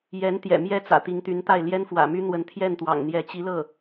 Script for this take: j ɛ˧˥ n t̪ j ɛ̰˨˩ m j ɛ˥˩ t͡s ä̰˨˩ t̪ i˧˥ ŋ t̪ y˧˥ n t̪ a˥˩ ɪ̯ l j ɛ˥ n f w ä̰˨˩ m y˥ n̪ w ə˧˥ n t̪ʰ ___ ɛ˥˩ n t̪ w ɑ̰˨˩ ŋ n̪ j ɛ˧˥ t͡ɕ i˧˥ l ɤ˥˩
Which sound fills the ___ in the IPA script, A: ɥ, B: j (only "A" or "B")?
B